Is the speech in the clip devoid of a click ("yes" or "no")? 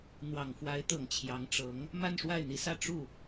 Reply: yes